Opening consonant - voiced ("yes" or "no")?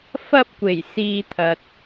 no